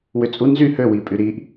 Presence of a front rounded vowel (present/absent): present